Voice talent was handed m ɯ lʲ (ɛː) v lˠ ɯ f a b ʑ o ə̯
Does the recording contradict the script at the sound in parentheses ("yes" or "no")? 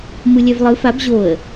yes